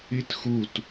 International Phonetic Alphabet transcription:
i t x u t

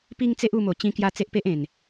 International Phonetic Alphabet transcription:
p i˦ ŋ t͡s e˦ ʔ u˧ m o˨˩ t͡ɕ ĩ˧ k j a˧ t͡s e˦ ʔ p e˦ ʔ ẽ˨˩ n

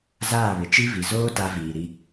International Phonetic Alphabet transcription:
z aː˦˨ β ɪ˨ t͡ʃ i˦ v i˨ z oː˦ t a˦ v iː˨ ɾ i˦

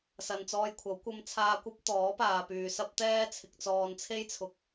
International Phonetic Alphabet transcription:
s ɐ˨ n t͡s ɔː˧ j kʷʰ ɐ˨˥ w kʷ ɐ˧ m t͡sʰ aː˧ kʷ ɐ˥ p̚ t̪ ɔː˨˥ p aː˨ p yː˨ s ɐ˥ p̚ t̪ ɛː˥ t͡sʰ ɪ˧ k̚ t͡s ɔː˧ n t͡sʰ e˥ j t͡sʰ ʊ˧ k̚

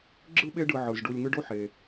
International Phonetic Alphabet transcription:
ɡ͡ǁ ɯ˥ ɓ e˦ ɖ ɯ˨ ʕ ɯ˩ z ɖ u˨ lʲ ŋ ɯ˦ ɖ o˥ ħ e˩

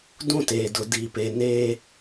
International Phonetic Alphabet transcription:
d ũ˦˨ t eː˨ d ʊ˨ d i˨ p e˨ n eː˦

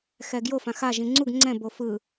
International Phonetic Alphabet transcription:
x ɛ ɡ j o f ã x a ʒ ĩ ŋ͡ǀ u ɡ ŋ͡ǀ ɛ̃ b o f ɯ

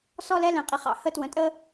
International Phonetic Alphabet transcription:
s ɔ˦ l ɛ˦ l ɛ̃˨ qʼ i˨ χ ɑ̰˨ h ə˦ t w ə̃˨ tʼ ə˦

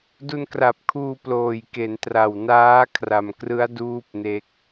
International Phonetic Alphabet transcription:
d u˧ n k r a˨˩ p̚ kʰ uː˧ p l oː˨˩ j k e˩˦ n t r a˨˩ w n aː˦˥ kʰ r a˨˩ m k r ɯ˦˥ a̯ d uː˥˩ p̚ n e˦˥ k̚

